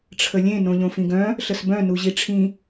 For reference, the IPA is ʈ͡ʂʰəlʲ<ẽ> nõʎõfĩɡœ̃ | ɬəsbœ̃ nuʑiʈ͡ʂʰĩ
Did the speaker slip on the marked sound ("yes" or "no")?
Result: no